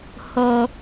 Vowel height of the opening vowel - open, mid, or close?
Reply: mid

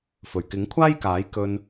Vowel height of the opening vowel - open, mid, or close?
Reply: mid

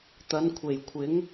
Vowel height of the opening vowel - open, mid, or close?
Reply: open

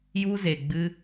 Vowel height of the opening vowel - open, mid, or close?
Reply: close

